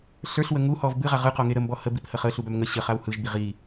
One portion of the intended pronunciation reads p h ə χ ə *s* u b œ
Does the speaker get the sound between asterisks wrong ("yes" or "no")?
yes